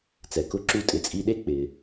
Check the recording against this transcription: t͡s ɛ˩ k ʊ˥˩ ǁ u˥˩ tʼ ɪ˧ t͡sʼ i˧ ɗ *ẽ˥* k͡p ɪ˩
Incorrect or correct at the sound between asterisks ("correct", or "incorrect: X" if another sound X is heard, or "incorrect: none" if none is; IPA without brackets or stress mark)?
incorrect: e˥